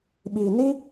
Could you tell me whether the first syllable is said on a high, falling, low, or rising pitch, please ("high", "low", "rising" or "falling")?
low